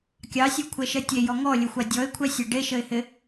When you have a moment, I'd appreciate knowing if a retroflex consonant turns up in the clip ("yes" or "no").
yes